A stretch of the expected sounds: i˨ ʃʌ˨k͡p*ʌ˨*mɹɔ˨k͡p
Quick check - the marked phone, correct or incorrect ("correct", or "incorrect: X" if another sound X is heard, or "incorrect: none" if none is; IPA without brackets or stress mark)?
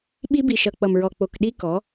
correct